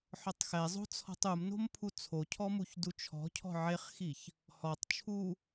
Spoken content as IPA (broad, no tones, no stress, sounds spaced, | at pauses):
ħ ɔ tˤ x ɛ zˤ o̤ t͡sʰ ɔ̤ tˤ u m n o̤ m pʰ u t͡sʰ o cʰ ɔ m u ç d u t͡ʃʰ ɔ̤ cʰ ɔ̤ ʕ e χ x i ç | h ɔ tˤ t͡ʃʰ u